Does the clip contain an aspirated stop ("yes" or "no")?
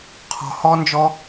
yes